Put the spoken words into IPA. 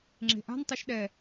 ŋ͡ǁ e̤ ʔ a̤ n tˤ e ʃ ɗ ɛ

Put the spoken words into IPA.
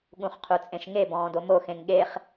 ɠ ũ χ qʰ u t͡sʼ ẽ ʃ ŋ e b ɔ̃ː d o m o x ẽ ŋ ɠ e χ

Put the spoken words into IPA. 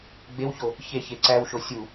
ɡ͡b e w ç o | ç e ç e ǀ æ w ʃ o sʲ u

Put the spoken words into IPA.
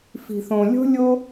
f i̤˩ θ õ˩ lʲ o̤˥ lʲ o˥

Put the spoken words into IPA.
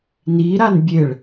n i ɾ a n bʲ e ɭ

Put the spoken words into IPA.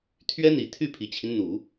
t̪ʰ ɥ ɛ˥ n̪ i˨˩ t̪ʰ y˥˩ pʰ i˨˩ t͡ɕʰ i˦ n n̪ u˨˩˦

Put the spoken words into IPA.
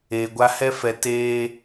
eː˨ ɡʷ a˦ h ɛ˦ f ɛ˨ t eː˦

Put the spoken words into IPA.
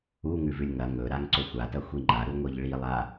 u ŋ ʉ v ʉ lʲ ŋ ɐ ŋ ɵ ɾ a ŋ ǀ o xʷ a t ɐ xʷ i ŋ͡ǃ a ɾ u ŋʷ i ʎ ɭ i lˠ a

